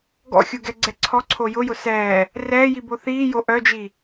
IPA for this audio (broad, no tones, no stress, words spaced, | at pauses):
ɡɔ̰xʲuɡɛɡ͡ǀɛ ǀʰɔǀʰo jʊjʊ sɛː | rɛːjibo θiːjo ʔœd͡ʒi